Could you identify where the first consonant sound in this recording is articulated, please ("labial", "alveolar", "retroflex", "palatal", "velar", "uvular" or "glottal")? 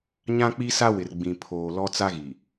palatal